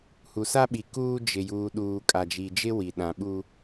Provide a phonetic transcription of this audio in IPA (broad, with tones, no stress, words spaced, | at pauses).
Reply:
hu˨sa˦ɓi˨ kuː˦ d͡ʒɪ˨juː˨ɗuː˨ kʼa˨ d͡ʒi˨d͡ʒɪ˦wi˨ ɗã˨ɓu˦